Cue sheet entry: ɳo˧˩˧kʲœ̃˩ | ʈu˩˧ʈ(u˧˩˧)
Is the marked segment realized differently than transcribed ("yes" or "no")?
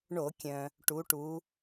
yes